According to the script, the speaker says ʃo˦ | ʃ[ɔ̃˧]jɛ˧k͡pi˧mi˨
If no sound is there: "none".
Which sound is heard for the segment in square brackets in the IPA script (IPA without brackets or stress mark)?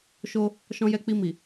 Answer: ɔ̃˧